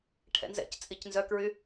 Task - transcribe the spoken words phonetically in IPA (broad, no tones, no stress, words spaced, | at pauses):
ʈʰɛ̰nzɛ̰ct͡sʼic nzœkɹy